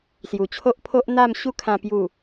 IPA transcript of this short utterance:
s j u˨˩ t͡ɕʰ o˦ ʔ pʰ o˦ ʔ n̪ a˥˧ m ɕ u˥˧ kʰ ã˧ p j u˨˩

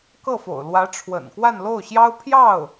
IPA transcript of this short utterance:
k ɤ˥˩ f o̰˨˩ ʊ̯ l w ä˧˥ ʈ͡ʂʰ w ə̰˨˩ n k w a˥˧ n l o˥˩ ʊ̯ ɕ j ɑ˥ ʊ̯ pʰ j ɑ˥˩ ʊ̯

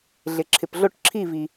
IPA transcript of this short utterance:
ɮ ɪ˨ ǁʰ ɪ˨ p ɮ o˦˨ ʈ ǁʰ i˦˨ v i˨

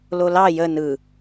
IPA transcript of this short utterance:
l o l ɑ j ə n ɯ

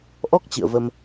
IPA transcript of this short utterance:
ʔ ɔ˦˥ k̚ t͡ɕ ɨ̰˧˨ ə̯ v ə˧ m

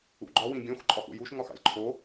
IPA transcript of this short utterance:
ṵ ɡ͡ǃ ɒ w ĩ ɡʲ õ x ǃʼ ɒ x ṵ j u ʃ ŋ ɒ x ɑ̰ lʲ ǃʰ o

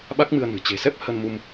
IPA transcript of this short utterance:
ɓ a˦˥ k̚ m ɨ˧ ə̯ n ɨ̤˨˩ t͡ɕ e̤˨˩ s ɛ˦˥ p̚ h ə˧ n m u˧ m

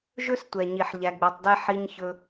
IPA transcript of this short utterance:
ʒ ɵ˦ s tʷ ɛ˨ ɲ i˨ ħ ʎ æ˧ ɡ͡b ɛ˧ tˤ d ɛ˦ ħ i˧ ɲ ç ɵ˧

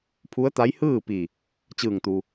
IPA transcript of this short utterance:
pʰ u˧˥ ə̯ t̪ a˧˥ j h ɯː˥˨ p i˧˩ | t͡ɕ ɯː˧˩ ŋ t̪ u˩

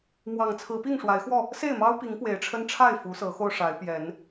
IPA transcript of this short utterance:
m w ɑ˨˩ ŋ t͡sʰ ɹ̩˨˦ p i˥˨ ŋ ʂ w a˨˦ ɪ̯ x w ɔ˥˨ | s e˥˨ ɪ̯ m ɑ˦ ʊ̯ p i˨˦ ŋ p w e˨˦ ɪ̯ ʈ͡ʂʰ ə˦ n ʈ͡ʂʰ a˥˨ ɪ̯ f u˨˦ s ɤ˨˦ x o˧ ʊ̯ ʂ a˨˦ ɪ̯ p j ɛ˨˦ n

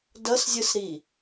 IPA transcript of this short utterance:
d ʌ s zʲ ɯ s ɾ i

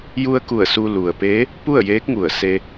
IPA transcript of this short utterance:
j u˧ ə̯ k u˧˩ ə̯ s u˧ l u˩ ə̯ p eː˧˥ | p u˥˨ ə̯ j eː˧˥ k̚ ŋ u˧˩ ə̯ s e˧

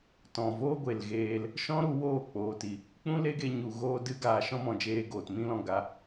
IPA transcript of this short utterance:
t ɔ̃˨ v oː˦ ɡʷ e˨ l ɣ eː˧ l | ʃ ɔ̃˦ ɾ u˧ w oː˦˨ k͡p oː˨ t i˨ | k͡p ũ˦ l e˦ ɡ e˧ ɲ u˨ ɣ oː˧ d ɨ˧ ɡ aː˨ ʃ ɔ̃˦ m ɔ̃˨ d͡ʒ eː˧ ɡ oː˨ t m ĩ˦ l ɔ̃˧ ɡ a˧

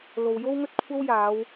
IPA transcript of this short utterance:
l o˨ w j o˥ w ŋ ɵ˥ t̚ kʷʰ ɐ˥ w j aː˨˧ w

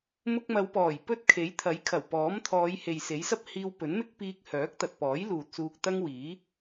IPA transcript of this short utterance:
m ʊ˧ k̚ m ɐ˨˧ w p ɔː˨˩ j p ɵ˥ t̚ kʰ e˨˥ j t̪ʰ ɐ˨˥ j kʰ ɐ˨˩ w p ɔː˨˥ m t̪ʰ ɔː˨˧ j h e˨ j s e˨˥ j s ɐ˥ p̚ h iː˧ w p ɵ˨˥ n m ɪ˥ k̚ p iː˧ k̚ h œː˨˥ k̚ t̪ ɐ˨ t̚ p ɔː˨˥ j l uː˨ t̚ s uː˧ k̚ t̪ ɐ˥ ŋ w iː˨˥

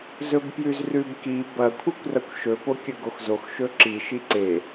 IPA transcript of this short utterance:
z ɵ b p j ʉ z r ʉ b k i b ɐ kʷʰ ɨ kʷ r ɐ kʷ ʃ ɵ p o kʲ ɵ ɡ o x z o x ʃ ɵ ǁ i ʃ i ǀ e

